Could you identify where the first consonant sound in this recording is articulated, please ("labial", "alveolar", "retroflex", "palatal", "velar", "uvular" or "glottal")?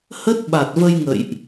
glottal